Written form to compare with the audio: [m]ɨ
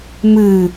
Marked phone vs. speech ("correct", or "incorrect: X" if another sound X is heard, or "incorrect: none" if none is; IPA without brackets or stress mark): correct